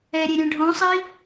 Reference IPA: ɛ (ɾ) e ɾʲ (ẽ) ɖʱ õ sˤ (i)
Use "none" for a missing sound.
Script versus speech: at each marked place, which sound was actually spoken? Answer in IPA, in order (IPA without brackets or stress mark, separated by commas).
ɾʲ, ɛ̃, i